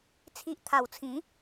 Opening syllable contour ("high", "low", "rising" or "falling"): low